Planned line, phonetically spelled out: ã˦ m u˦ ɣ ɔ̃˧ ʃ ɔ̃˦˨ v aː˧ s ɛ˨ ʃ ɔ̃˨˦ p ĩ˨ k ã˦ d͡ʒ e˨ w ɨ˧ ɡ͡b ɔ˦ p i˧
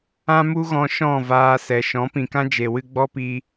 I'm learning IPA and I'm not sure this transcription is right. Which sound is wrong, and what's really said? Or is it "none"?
none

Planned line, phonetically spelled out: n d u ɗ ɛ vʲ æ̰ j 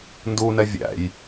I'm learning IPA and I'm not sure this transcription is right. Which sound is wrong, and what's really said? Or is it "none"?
ɗ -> n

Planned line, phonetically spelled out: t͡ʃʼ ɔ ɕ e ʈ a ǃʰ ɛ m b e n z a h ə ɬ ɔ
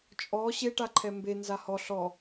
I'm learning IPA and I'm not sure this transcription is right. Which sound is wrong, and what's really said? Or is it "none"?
ə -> ɔ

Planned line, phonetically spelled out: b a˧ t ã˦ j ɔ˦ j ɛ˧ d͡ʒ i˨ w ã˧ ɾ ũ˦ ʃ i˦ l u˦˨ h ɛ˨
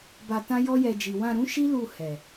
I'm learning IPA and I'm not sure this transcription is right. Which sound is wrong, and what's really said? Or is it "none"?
none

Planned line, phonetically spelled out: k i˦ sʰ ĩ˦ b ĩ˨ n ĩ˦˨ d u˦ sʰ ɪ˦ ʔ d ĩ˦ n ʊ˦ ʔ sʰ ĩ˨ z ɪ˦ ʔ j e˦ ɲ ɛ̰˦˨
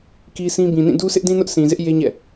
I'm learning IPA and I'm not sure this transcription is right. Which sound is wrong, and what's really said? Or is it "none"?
none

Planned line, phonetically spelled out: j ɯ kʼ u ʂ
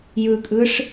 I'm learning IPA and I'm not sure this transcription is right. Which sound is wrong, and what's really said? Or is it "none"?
u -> ɯ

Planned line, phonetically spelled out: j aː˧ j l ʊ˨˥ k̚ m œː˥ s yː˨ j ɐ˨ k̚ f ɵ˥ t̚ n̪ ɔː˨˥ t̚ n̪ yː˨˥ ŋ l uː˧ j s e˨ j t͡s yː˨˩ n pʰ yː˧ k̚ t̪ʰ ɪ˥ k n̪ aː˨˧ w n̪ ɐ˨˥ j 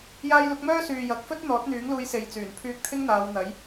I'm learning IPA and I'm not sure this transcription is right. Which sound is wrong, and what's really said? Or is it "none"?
k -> ŋ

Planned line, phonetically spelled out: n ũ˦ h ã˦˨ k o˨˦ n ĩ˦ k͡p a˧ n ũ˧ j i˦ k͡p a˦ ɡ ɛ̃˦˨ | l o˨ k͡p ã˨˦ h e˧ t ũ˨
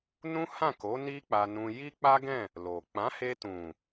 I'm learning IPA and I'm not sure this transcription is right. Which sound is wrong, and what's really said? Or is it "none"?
ĩ˦ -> i˦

